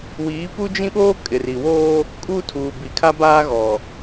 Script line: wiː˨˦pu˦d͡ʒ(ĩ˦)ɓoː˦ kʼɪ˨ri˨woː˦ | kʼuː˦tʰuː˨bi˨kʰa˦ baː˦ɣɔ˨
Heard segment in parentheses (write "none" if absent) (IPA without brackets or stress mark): ĩ˦